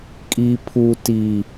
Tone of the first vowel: high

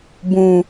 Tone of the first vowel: low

